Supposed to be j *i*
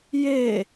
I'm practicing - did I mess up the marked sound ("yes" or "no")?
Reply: yes